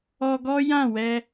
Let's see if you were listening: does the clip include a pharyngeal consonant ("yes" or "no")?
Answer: no